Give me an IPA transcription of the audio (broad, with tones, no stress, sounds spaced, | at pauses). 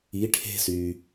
i˧˥ ʈʰ e̤˥ s y˧